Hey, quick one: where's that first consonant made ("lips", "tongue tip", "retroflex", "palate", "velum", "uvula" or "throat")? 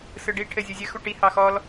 tongue tip